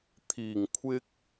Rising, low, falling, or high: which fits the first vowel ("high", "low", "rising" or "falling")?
low